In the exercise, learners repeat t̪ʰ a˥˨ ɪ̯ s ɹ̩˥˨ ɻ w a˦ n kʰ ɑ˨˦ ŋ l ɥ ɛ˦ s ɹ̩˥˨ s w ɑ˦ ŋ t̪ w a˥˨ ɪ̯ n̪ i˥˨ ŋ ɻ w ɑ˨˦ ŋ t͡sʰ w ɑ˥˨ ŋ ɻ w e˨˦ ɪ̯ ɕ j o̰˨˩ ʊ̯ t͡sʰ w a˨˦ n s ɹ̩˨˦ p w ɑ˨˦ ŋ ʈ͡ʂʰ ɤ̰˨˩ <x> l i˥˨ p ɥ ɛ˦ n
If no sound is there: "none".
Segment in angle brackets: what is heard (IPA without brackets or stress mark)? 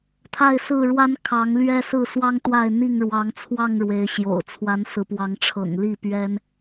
ŋ